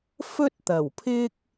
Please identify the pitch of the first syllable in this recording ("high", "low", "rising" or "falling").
high